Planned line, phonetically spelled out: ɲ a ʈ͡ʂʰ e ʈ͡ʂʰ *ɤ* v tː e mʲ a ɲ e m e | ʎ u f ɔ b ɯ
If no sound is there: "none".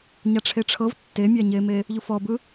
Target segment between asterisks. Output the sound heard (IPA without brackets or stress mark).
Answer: ɤ